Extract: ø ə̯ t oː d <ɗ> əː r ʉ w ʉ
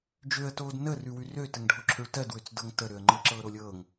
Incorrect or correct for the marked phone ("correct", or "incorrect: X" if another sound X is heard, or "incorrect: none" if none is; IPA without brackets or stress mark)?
incorrect: n